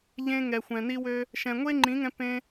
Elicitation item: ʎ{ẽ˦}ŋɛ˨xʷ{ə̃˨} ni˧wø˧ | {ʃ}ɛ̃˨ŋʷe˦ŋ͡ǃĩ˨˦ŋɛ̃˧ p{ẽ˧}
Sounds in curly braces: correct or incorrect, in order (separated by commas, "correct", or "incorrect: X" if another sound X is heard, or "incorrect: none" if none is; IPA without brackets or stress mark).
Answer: incorrect: ẽ˧, incorrect: ɛ̃˨, correct, correct